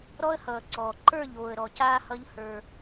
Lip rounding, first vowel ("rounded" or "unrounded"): rounded